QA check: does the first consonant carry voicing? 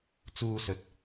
no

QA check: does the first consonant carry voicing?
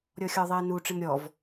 yes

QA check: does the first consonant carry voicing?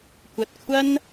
no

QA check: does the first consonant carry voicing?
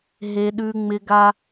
yes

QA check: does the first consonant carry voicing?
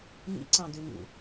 yes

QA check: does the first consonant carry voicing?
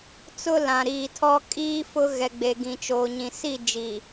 no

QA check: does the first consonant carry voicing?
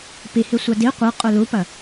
no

